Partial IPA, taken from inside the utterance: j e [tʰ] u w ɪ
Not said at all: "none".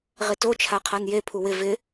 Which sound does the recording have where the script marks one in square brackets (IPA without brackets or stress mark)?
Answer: pʰ